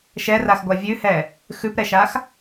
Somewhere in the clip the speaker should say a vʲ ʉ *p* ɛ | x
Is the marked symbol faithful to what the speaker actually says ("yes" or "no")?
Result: no